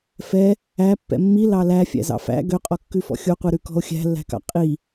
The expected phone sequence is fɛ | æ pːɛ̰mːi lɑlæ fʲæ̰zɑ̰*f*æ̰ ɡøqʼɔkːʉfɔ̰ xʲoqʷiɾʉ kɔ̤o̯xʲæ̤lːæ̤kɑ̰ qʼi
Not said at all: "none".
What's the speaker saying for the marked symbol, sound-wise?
f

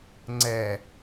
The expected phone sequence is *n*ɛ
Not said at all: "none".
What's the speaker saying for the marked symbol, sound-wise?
ŋ͡ǀ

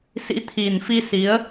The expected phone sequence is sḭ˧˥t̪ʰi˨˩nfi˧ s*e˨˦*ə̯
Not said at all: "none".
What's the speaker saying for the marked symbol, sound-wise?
i˨˦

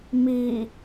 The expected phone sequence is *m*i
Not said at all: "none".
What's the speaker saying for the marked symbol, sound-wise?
m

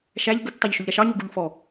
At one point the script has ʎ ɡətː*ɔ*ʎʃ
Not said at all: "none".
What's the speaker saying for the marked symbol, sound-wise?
ɑ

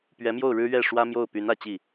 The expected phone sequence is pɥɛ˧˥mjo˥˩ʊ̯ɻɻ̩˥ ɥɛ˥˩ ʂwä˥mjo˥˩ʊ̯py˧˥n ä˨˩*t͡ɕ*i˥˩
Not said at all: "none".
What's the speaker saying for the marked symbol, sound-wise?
t͡ɕ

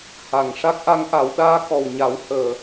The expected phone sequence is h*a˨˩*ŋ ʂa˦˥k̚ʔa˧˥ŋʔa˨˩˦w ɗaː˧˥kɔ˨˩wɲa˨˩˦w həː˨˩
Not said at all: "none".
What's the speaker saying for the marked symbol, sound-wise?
a˨˩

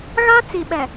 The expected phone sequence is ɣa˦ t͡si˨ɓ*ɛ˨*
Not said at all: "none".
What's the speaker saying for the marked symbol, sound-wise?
ɛ˨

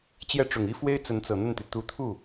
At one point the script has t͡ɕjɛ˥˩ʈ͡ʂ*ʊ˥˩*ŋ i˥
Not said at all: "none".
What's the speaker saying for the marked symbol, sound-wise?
ʊ˨˩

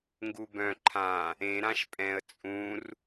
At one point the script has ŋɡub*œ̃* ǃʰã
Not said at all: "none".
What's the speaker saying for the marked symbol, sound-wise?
œ̃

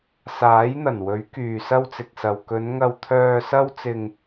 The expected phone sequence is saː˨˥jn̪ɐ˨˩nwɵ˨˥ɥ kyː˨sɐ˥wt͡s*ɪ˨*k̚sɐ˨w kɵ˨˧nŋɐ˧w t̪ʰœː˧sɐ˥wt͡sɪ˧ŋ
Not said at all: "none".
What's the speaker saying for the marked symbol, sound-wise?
ɪ˨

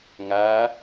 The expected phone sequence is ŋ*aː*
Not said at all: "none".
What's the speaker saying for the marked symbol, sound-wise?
aː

